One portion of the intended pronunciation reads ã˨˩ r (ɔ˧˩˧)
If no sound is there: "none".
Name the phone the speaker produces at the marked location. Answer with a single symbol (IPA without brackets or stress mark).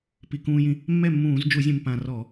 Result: ɔ˧˩˧